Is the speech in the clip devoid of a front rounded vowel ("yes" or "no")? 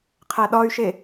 no